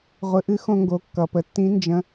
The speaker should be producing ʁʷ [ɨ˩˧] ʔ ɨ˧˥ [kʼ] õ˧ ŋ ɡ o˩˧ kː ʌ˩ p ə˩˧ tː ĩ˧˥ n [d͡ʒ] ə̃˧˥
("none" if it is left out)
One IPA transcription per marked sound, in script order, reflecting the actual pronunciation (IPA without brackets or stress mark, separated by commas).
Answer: ɨ˩˧, x, d͡ʒ